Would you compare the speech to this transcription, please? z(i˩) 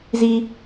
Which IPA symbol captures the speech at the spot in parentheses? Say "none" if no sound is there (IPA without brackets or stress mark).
i˩